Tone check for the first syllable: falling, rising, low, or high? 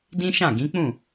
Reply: high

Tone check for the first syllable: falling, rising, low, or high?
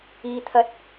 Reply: low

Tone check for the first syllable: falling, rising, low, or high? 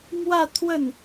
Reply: falling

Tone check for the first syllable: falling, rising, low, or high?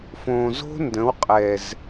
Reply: low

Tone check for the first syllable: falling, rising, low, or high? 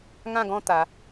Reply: falling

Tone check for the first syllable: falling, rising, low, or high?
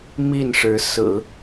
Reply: falling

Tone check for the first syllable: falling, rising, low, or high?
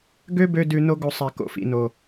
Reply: high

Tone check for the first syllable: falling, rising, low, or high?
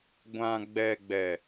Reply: low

